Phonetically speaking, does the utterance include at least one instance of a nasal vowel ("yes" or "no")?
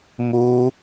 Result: no